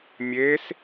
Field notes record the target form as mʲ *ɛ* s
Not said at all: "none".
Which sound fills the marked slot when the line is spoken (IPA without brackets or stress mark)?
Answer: e